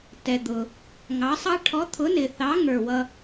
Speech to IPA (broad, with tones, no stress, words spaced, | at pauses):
tɛ˨d̪ʊ˨ | ŋɑ˨˥sˤɑ˥ ʈʰɔ˨˥t̪ʰʊ˨˥nɪ˨θɑ˨˥ ŋə˞˥˨wʌ˥